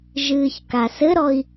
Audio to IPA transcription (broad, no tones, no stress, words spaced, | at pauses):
ʒɨːçkasɘɾɔi̯